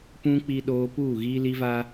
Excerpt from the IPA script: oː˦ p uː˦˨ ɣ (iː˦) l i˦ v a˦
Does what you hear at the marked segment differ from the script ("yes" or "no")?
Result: no